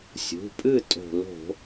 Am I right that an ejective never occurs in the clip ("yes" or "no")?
no